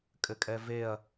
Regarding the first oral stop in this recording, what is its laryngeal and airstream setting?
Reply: ejective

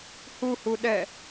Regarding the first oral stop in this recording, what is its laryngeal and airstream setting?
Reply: implosive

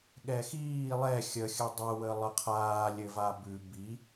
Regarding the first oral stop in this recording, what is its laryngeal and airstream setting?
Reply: implosive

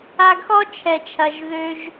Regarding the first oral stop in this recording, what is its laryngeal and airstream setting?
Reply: plain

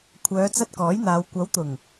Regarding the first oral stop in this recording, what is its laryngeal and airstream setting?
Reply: aspirated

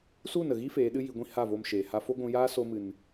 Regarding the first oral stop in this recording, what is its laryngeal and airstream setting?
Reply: implosive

